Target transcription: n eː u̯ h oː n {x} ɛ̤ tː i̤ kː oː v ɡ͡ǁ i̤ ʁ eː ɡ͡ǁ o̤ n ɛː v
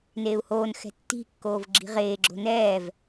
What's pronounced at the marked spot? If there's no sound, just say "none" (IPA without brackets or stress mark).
x